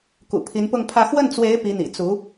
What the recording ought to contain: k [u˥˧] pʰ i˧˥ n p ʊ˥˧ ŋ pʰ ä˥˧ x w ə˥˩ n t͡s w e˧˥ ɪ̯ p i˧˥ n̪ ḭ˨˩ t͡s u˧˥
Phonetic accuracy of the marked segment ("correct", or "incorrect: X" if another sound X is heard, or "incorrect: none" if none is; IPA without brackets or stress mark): incorrect: ṵ˨˩